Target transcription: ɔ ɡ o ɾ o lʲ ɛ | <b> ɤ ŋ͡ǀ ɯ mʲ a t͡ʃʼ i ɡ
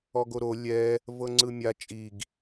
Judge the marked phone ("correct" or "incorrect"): incorrect